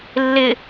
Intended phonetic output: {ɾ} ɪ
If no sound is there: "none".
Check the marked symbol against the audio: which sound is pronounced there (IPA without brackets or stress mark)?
lː